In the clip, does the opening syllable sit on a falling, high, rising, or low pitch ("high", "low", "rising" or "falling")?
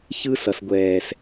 high